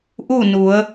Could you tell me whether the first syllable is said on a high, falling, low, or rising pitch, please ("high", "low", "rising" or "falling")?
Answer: falling